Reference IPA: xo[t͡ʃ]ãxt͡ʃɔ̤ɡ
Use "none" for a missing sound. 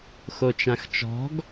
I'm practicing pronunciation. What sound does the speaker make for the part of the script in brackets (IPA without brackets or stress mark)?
t͡ʃ